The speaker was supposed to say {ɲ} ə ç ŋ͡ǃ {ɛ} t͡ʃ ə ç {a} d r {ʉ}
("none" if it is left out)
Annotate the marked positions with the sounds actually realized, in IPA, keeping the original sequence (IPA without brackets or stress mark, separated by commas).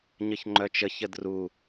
ɲ, œ, ə, u